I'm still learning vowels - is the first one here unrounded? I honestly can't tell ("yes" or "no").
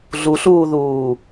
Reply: no